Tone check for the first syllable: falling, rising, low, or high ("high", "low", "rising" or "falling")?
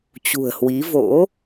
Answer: low